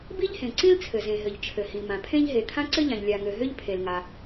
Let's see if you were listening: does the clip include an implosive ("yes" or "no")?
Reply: no